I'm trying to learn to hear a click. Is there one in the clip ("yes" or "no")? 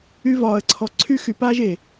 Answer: yes